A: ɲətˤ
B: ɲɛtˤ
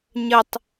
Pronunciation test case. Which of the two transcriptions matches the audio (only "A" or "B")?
A